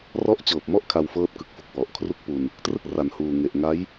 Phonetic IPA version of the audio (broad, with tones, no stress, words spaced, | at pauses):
rɔ˦˥ʔt͡ɕɤː˨˩p̚mɔ˥˩ʔ kʰa˧wfɤː˦˥t̚kɯ˨˩k̚fu˨˩k̚ wɔ˨˩ʔkʰru˥˩k̚pu˧n | trɯ˥˩k̚ra˨˩nhuː˨˩ ŋe˨˩ʔŋa˦˥j